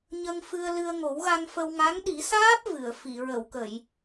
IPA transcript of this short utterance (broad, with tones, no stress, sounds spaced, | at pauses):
ɲ ə˧ ŋ f ɨ˧ ə̯ l ɨ˧ ə̯ ŋ o˨˩˦ w ɣ a˧ ŋ f ə˧ w ŋ a˧˥ ŋ ɗ i˨˩˦ s aː˦˥ p̚ v ɨ˨˩˨ ə̯ f i˨˩˨ ɹ ə˨˩˨ w k ə˨˩˨ j